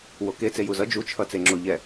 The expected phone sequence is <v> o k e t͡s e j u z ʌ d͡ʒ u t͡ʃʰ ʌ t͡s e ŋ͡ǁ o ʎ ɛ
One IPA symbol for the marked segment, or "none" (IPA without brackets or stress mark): w